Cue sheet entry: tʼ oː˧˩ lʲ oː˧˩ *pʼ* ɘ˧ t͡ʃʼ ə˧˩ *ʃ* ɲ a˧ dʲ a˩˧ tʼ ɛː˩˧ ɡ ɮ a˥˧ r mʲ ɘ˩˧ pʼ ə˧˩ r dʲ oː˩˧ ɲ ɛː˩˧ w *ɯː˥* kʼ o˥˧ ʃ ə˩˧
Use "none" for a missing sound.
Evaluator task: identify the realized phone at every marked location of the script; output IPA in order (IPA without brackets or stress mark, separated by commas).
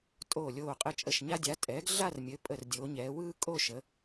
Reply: qʼ, ʃ, ɯː˥